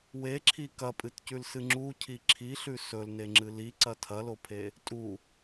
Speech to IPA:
weǁʰi kɐpʼɨtcʉlsɨ ŋ͡ǁucʰi ǁʰiɬʉ sɵlneŋ͡ǁɨ liǀɐ tʰɐlopʰe | tʼu

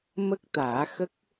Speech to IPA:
mə˦˥k̚t̪aː˨˩˦xə˦˥k̚

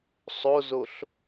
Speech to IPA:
sˤozoɬ

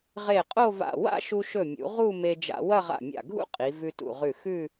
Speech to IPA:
ʁe˧˩qʼo˥˧va̰˧˩ wa̰˥˧ʃu˧ʃɵ˧˩mʲṵ˩˧ ʁu˥˧ me˧d͡ʒa̰˧wɐ˥˧ ʁa̰˧˩mʲa̰˧˩ɡʱṵ˥ qʼi˩˧vʉ˧tṵ˧˩ʁʉ˧˩ xʉ˥˧

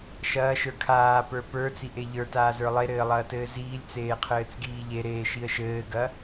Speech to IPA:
ʃɐːʃə˞ kʰaːpə˞ pə˞t͡siʔe ʎə˞taːzə˞ lˠeɾɘːlˠɐːtɘː ziːlʲt͡seːqʰɘːt͡sɡiː ʎeɾeːʃiə̯ ʃɘːɡɐ

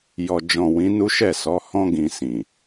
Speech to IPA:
jɔ˨d͡ʒɔ̃˨ wĩ˨˦nu˦ʃɛ˦˨sɔ˨˦ hɔ̃˧ɡĩ˨ sĩ˨

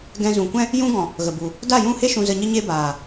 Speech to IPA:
ɡɛ̃˧zũ˨kʷɛ̃˦ | jũ˦ɡɔ̃˨ | ɣə˨bu˨ | da˦˨jũ˦˨he˦ ʃũ˧zə˧ɲə˦ ɲe˦baː˨

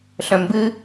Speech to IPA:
ɬœ̃mbɨ

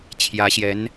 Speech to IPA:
t͡ɕʰjä˧˥ɕjɛ˧˥n

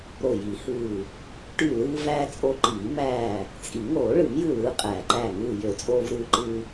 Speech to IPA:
ɾo˧˩ji˨˩˦hɯː˧˩ | ʈy˧˩lɯː˧væː˧ t͡sʼo˧ ǃiː˨˩˦ mæː˧˩ | t͡sʼi˨˩˦ ŋoː˨˩˦ɭɯ˨˩˦mjɯ˧˩ lɯː˧qʼæ˨˩˦ǃæ˧˩ ŋɯː˧˩jø˨˩˦t͡sʼoː˧v ɾɯː˧ ǃɯː˧

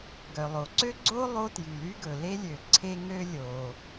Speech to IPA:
ɡœ˩lˠo˩ǀø˥ɡ͡ǀo˥ lˠo˥tjy˩ly˥ ɡɵ˩le˥lʲø˩ ǀʰe˥ŋø˥ lʲo˩

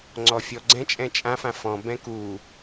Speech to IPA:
ŋ͡ǀɔfʲɔɡ͡ǀɛ̃ t͡ʃʼɛ̃t͡ʃʼã fãfɔ̃ bɛ̃ku

